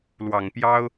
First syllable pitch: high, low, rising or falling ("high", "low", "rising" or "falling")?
low